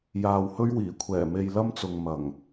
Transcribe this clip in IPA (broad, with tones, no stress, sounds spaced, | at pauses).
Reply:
j aː˨ w h ɵ˥ ɥ w iː˨˩ kʷʰ ɛː˨˩ m e˧ j l ɐ˥ m t͡s ʊ˨ ŋ m ɐ˨˩ ŋ